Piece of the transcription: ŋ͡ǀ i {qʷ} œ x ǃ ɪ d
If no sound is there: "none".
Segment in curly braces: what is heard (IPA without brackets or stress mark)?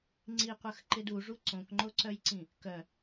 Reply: qʷ